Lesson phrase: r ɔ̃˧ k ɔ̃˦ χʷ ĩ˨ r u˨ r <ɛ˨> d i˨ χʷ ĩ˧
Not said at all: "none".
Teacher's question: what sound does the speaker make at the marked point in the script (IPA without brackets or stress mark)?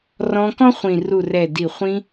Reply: ɛ˨